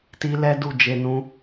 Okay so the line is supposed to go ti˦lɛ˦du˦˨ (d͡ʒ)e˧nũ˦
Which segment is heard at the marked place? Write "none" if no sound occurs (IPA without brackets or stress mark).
d͡ʒ